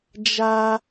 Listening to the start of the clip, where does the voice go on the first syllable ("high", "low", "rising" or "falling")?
high